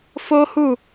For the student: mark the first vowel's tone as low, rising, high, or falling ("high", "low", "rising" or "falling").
high